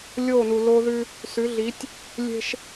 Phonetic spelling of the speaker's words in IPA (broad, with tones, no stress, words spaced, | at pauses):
lʲoː˦˨nu˨lo˦ðʉ˦ | sʉ˨˦ɮi˨˦tʲ | lʲe̤˦ʃ